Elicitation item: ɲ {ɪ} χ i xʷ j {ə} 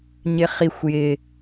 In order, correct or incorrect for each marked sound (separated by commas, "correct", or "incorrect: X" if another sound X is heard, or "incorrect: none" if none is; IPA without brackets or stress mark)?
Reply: correct, incorrect: ɪ